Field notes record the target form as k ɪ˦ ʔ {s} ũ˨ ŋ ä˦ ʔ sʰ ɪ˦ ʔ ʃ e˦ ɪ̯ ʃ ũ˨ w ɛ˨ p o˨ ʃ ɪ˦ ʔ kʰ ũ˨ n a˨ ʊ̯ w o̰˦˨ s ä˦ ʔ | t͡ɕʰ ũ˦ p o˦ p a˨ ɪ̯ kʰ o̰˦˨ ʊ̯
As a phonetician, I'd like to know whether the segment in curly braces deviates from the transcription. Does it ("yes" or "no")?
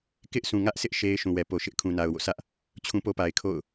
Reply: no